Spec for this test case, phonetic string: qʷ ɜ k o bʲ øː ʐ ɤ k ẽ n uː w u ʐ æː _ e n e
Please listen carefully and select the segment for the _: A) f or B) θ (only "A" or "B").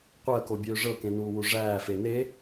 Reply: A